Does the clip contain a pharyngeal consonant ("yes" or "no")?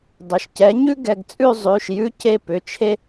no